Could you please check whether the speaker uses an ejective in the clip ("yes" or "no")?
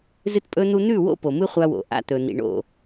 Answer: yes